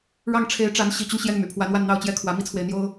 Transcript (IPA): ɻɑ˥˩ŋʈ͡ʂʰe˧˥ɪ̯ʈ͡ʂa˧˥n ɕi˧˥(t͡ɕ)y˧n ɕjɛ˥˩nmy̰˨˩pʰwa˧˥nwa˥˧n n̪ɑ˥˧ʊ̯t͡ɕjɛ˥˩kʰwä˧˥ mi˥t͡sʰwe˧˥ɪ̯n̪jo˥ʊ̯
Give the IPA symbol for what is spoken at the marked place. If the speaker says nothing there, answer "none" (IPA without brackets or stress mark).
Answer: t͡ɕ